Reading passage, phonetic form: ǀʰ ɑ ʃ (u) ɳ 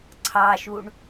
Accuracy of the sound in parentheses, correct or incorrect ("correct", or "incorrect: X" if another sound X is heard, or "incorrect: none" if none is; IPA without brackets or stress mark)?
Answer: correct